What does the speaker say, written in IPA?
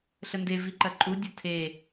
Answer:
ɬənde viǃɐǃʼu dʲɐtʰe

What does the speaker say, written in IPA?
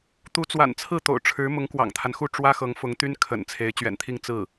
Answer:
t̪u˧˥t͡swa̰˨˩nt͡sʰɹ̩˥˩ t̪o̰˨˩ʊ̯ʈ͡ʂʰɻ̩˧˥ mʊ˧˥ŋkwɑ̰˨˩ŋt̪ʰa˦nxu˥˩ ʈ͡ʂwä˥xɤ˧˥ŋ fʊ˧˥ŋt̪y˥n kʰə̰˨˩n t͡sʰe˧˥ɪ̯ t͡ɕɥɛ̰˨˩nt̪ʰi˥˧ŋ t͡sɹ̩˥˩

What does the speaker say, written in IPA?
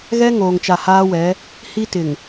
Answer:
ɣɛ˦ ŋoː˨ŋt͡ʃa˨haː˦wɛ˨˦ | hi˦tɪ˨ŋ

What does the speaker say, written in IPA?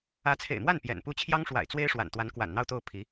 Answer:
ä˧˥t͡sʰḛ˨˩ɪ̯mwa˥˩n pjɛ̰˨˩npu˥˩ t͡ɕʰjɑ˥ŋʂwa̰˨˩ɪ̯ t͡swe˥ɪ̯ʂwa̰˨˩nt̪wa˧˥n kwa̰˨˩nn̪ɑ˥˧ʊ̯t̪o˥˩ʊ̯ pʰi˧˥

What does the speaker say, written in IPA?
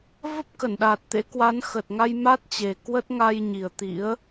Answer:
və˦˥p̚kə˧˩nɗaː˨˩t̚ t̪ḛ˧˥ kwa˨˦nxə˨˩t̚ŋa˧j ma˦˥t̚t͡ɕe˨˩kwə˦˥t̚ ŋa˧jɲi˨˩ə̯t̪ḭ˧˥ə̯

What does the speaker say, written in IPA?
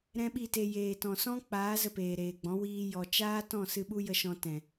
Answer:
ɾɛ̃˦ɓi˦˨te˧ jeː˨tɔ̃˨sɔ̃˦ k͡paː˨˦ zə˧peː˨ɾeː˨ɡ͡bɔ̃˨˦ wiː˧jɔ˨ t͡ʃaː˦ tɔ̃˦˨ sɨ˧ɓu˦jə˧ʃɔ̃˧ tɛ̃˨

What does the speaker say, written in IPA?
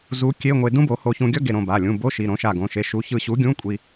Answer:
zu˨˥kʲe˧˥˧ŋʷe˧ dũ˥bo˨˥ ho˧çũ˧ɡʲʌ˥ ɡe˧˩ɾõ˧˩ba˩˧˩ lʲũ˩˧˩bo˧˥˧ʃi˩˧˩ ɾõ˨˥ʃa˧˩ɡõ˩˧˩ ʃe˨˥ʃu˨˥ çɯ˧˩ɕu˨˥ ɡʲũ˧˥˧kʷʼi˧

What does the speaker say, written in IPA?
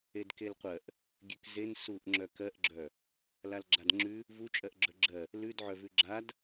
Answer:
edkelqʷɜʔ | ɡʲʉkzen suʔŋ͡ǁœ kɜʔɡ͡ǁœ | lalɡ͡ǁadŋ͡ǁʉ | vut͡ʃʼɜʔɡ͡ǁœ ɡ͡ǁɜ | lʉdʕœvʉ ɡ͡ǁad

